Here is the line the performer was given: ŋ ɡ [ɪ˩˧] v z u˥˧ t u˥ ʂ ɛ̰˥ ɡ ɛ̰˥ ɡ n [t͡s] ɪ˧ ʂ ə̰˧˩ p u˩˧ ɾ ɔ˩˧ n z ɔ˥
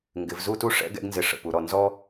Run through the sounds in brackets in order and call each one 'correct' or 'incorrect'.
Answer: correct, incorrect

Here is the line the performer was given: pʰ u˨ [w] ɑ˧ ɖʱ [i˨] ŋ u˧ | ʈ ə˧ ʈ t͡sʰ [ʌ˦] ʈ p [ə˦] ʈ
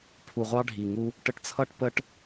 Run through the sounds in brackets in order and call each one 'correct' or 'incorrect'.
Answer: incorrect, correct, correct, correct

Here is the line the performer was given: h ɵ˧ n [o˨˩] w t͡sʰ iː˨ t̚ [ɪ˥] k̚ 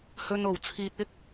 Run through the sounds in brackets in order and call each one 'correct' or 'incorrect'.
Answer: correct, correct

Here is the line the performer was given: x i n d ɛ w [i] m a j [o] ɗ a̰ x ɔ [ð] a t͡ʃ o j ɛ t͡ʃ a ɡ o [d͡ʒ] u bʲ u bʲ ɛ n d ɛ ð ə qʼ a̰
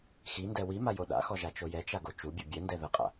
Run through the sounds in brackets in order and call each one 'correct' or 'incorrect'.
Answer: correct, correct, incorrect, incorrect

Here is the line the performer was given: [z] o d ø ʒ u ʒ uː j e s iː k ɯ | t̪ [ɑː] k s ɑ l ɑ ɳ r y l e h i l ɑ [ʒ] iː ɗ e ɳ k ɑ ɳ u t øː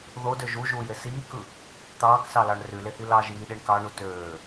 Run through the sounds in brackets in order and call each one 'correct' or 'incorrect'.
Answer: incorrect, correct, correct

